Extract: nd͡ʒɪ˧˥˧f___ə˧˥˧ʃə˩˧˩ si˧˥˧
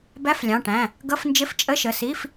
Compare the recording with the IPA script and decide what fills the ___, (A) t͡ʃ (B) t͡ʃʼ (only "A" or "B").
B